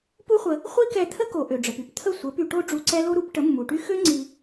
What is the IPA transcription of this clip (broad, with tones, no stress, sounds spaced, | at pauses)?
p u˦ χʷ ə˧ | χʷ i˦ k ɛ˧ t̪ʰ ə˦ k o˨ ʔ ø˨ ɖ͡ʐ ə˨ p y˦ p t̪ʰ ə˦˨ sʷ ə˨˦ p y˧ ʈ o˦ ɖ͡ʐ u˧ ǀ ɛ˦ l o˦ ɾ u˨˦ p ʈ ə˨˦ mː u˨ ʈ y˦ x ø˦ ŋ͡ǀ i˧